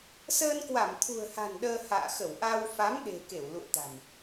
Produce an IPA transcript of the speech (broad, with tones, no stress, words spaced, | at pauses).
səː˧nkwa˧˩mt̪ʰṳ˨˩ə̯ha̤˨˩n ɗəː˧ ha̰ː˧˨xə˧˩w ʔa˧w fa˨˦mɗe̤˨˩ ke˧˩wlṵ˧˨ə̯t̪a̤˨˩m